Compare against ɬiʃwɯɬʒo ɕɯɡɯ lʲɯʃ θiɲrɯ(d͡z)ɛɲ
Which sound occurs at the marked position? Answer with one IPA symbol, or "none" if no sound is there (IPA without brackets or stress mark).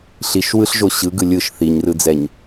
d͡z